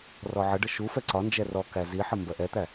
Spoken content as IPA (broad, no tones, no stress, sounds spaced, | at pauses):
r ɔ ʕ ə ɖ ə ʃ u f ɛ ǀ ɒ n d͡ʒ ɛ r ɔ k æ z i ħ ə m b ɜ ʔ ɛ t̪ æ